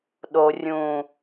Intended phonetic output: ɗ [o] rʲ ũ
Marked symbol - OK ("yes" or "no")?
yes